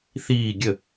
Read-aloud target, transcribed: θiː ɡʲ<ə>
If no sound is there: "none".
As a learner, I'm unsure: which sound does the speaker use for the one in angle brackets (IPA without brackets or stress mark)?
ə